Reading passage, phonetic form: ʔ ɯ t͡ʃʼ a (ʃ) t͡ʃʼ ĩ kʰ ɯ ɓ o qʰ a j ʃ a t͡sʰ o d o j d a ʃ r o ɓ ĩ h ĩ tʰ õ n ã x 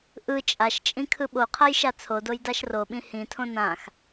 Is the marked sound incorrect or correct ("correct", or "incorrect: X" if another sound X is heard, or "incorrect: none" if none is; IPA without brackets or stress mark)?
correct